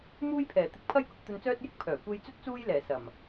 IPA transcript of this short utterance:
muː˥jpʰɛː˨˩ t̪ɪ˧k̚pʰɐ˥jkʊ˧k̚ t̪ɵ˧nt͡sœː˥t̚jɪ˥k̚ pʰœː˨˩kʷe˧jt͡sɵ˥t̚ t͡suː˥jlɛː˨˩ sɐ˨˩m

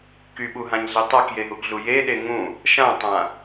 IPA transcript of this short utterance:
kyɓuɦãɲɮe tˤakjeɦuɡɮu jeɗe ŋũ | ʃãtˤã

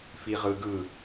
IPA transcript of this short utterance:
fiʁɯɡɯ

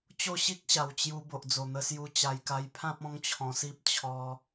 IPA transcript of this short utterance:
t͡ɕo˥˧ɕi˦k̚ɕa˨˩w t͡ɕju˧ bo˨ʔd͡zo˨˩n̪ə˧ sju˧ t͡ɕa˧jka˧jpʰã˦p̚ ɔ̃˦ŋt͡ɕʰɔ̃˧si˦p̚ t͡ɕʰɔ˦

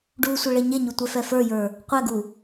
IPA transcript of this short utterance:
ɖu sʷeɭeɲeɲu tʷɛfɛfə˞jə˞ | qʷɛɡu

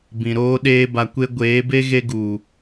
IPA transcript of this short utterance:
bĩ˨ɾoː˦ ɗeː˦ba˧kʷe˦ ɡʷeː˨˦be˦ ɣe˦ɡu˨

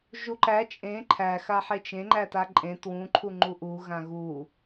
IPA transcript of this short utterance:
ʒuǃæ t͡ʃʼẽ ǃʰæ xaħet͡ʃẽ ŋ͡ǃætaǃʼẽ twũ ǃʰuŋ͡ǃuʔu ɣãɣu

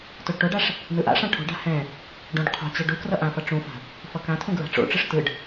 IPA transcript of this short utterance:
toɖʈoɖaʂ | nɯʔa̰ʂã ʈʰo̤ɖa̤ hɛ̃ | ɖõɖ qʰo̤t͡ɕɛ ɖu krʌʔãfʌ ʈ͡ʂũfa̤ | fʌkãtʰũ ɡɹa̤ʈ͡ʂo̰ʈ͡ʂɯʂ tɯɖ

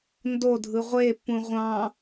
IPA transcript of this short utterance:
ndodʱɯ ʁʷepːũ ʁʷɑ̃

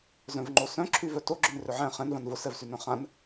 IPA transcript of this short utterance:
zœ̃vŋ͡ǃosœ̃ ǁʰyvœto ɡ͡ǁʏnrʏʕɛ̃ χɛ̃n vãnvʊ sɛvsynœ̃χãn

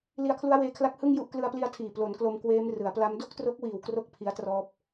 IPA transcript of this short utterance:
li˧a̯kʰlu˦˥a̯weː˦˥kʰla˦˥k̚ hɯ˥˩ŋju˥˩ʔ klɯ˧a̯pli˧a̯tʰiː˨˩ plo˩˦nklo˧mkweː˦˥m rɯ˩˦a̯pla˦˥m do˥˩k̚tro˦˥k̚wiː˨˩w kro˥˩k̚pʰi˦˥a̯trɔː˦˥p̚

